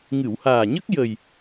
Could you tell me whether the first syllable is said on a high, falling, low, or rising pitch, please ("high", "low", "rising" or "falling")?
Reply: low